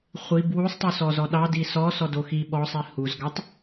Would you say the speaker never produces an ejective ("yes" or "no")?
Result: yes